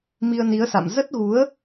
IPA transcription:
m i˧ ə̯ n i˨˦ ə̯ s a̰˧˨ m z ə˦˥ t̚ ɣ u˨˦ ə̯

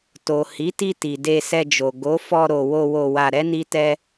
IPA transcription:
t o˨ h i˨˦ t i˧ t i˨ d e˧ s ɛ˧ d͡ʒ o˨ ɡ o˨˦ f ɔ˧ ɾ o˨ w o˧ w o˧ w a˧ ɾ ɛ˦ n i˦ t ɛ˦

